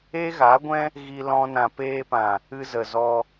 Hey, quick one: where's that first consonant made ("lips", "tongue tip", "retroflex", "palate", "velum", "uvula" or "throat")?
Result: velum